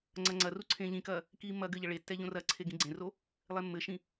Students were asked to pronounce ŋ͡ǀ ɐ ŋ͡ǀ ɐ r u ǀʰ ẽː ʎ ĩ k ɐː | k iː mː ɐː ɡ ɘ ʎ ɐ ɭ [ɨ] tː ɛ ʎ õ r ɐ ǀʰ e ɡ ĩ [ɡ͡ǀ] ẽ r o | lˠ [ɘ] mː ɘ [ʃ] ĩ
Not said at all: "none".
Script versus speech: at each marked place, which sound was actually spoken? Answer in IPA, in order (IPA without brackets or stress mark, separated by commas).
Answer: e, ɡ͡ǀ, e, ʃ